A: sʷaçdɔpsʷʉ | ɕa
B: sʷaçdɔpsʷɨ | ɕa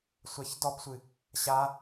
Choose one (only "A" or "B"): B